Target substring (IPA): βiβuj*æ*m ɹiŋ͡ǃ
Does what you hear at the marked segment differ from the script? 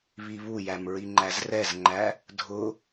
no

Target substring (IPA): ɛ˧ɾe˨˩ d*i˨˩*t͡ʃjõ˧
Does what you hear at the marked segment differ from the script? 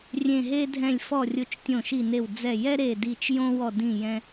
no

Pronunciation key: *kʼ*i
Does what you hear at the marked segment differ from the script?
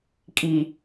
no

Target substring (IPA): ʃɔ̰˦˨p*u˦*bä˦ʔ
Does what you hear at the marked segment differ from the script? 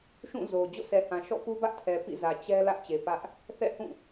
no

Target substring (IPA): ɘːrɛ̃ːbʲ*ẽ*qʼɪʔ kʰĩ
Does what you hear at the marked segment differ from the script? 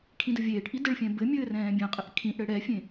no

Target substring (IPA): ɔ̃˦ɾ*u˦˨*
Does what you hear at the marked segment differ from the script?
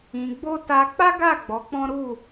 no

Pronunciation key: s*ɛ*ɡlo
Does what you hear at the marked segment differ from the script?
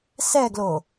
no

